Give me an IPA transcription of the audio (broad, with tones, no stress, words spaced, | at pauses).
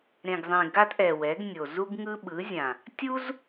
ɾẽ˨ɡzˤẽ˨ɡa˦t ʔɛ˨wɛ˨˦ɡnʲo˨ zu˦ɡŋɯ˦ɓɯ˨˦zʲã˨ | tʲu˦z